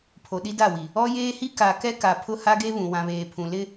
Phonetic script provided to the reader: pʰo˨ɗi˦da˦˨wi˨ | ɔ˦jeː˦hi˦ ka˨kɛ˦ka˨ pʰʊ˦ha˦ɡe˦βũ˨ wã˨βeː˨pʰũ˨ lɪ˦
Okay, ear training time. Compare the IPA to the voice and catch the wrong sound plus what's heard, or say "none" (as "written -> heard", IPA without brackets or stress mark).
none